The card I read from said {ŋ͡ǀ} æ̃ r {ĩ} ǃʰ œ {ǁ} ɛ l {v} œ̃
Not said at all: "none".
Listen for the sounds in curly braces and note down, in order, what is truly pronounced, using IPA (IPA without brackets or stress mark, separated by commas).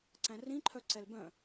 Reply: ǀ, ĩ, ǀ, b